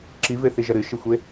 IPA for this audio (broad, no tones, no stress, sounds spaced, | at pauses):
ǁ i v e θ i ʒ ɐ ɾ ɨ ʃ i xʷ e